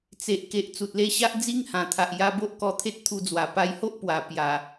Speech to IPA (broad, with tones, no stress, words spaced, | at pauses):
t͡se˨ʔke˨ʔ t͡su˨t̚le˧ɕa˦ʔ d͡zi˦ŋhã˨˩t̪ʰa˨ʔ ja˧bo˦ʔkɔ˧ t̪ʰe˦t̚t̪ʰu˧d͡zwa˨˩ pa˧jho˦ʔ pwa˨˩ pja˨˩